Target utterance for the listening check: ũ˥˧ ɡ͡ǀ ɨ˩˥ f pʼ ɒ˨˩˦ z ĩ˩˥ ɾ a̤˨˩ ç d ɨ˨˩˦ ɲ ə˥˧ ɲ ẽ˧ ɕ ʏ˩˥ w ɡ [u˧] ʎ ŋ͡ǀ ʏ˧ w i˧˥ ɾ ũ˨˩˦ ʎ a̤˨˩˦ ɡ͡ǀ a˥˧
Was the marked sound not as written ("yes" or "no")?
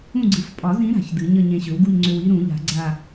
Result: yes